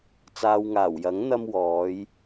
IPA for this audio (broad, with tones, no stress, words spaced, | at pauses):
t͡saː˨wŋaː˨˩wjɐ˨˥ŋ n̪ɐ˧mwɔː˨˧j